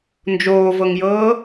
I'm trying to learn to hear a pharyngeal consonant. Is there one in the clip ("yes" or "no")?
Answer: no